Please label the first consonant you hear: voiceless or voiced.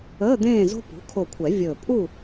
voiced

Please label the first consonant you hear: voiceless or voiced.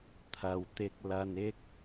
voiceless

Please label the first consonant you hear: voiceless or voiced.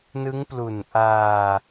voiced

